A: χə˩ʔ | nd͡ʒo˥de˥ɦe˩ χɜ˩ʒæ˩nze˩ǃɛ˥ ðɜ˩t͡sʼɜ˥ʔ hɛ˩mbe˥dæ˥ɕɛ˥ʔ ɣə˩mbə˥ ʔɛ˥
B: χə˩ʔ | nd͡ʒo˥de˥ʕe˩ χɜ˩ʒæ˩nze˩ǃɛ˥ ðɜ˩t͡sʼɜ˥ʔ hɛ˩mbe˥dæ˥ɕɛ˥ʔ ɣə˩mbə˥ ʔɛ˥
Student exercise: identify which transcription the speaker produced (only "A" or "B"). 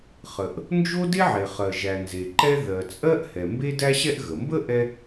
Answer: B